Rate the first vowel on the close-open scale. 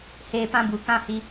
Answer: mid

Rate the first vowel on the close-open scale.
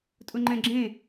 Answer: close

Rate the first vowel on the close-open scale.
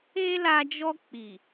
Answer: mid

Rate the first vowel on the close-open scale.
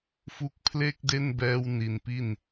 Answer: close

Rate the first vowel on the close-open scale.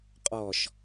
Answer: mid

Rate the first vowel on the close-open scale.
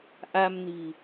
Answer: open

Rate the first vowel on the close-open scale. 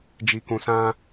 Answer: close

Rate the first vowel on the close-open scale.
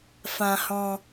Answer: open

